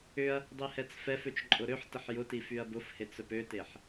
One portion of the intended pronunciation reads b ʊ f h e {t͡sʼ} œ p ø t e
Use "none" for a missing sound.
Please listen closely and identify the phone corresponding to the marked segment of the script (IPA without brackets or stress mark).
t͡s